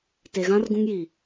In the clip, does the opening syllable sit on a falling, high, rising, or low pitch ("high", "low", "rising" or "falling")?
low